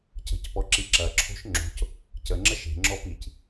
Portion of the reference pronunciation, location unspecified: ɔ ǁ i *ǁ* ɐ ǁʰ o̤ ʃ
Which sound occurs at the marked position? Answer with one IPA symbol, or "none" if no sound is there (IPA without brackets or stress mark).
ǁ